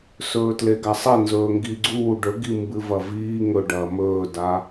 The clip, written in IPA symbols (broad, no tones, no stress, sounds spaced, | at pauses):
s ɵː t l e ɡ a sˤ e n z ɵː ŋ ɡ i ɡ͡ǀ uː ɖ ɵ ɡ i m b ɨ v ɐ v iː ŋ ɵ ɖ ɐː m ɵː d a